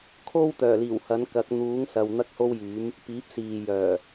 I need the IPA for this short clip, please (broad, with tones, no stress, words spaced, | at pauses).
kʰo˥wt̪œː˨˩liː˨˩w hɐ˨˥nkɐ˨˥k̚ n̪uː˨˥ŋsɐ˨w n̪ɐ˥k̚ho˥wjyː˨˥m | piː˨˥p̚ siː˨ jœː˨˩